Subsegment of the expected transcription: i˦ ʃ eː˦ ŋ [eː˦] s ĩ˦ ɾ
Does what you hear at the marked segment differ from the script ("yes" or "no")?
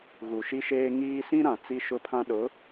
yes